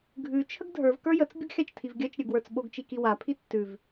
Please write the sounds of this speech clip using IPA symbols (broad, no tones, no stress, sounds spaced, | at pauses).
ɡʱ ʉ t͡ʃʰ ə ɡ dʱ ə˞ v k ə˞ j ə t͡s bʲ ə ɡ xʲ a t͡ʃ tʰ i v ɡʲ ɜ t͡ʃ ɾʲ ə˞ ɡ w ə˞ t͡s ɓ o ɡ t͡ʃ i k i w a pʰ i tː ʉ v